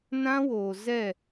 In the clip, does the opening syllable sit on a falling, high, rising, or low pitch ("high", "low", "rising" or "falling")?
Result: high